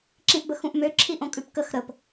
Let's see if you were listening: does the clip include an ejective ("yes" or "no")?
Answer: yes